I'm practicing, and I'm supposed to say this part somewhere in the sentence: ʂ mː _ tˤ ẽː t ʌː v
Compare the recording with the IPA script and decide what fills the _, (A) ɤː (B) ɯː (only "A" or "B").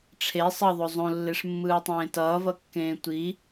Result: B